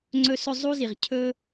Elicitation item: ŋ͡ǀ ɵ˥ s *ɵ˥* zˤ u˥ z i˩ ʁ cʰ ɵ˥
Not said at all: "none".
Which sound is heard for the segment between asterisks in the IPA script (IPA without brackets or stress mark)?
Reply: ɵ˥